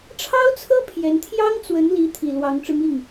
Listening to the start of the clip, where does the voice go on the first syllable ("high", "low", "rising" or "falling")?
high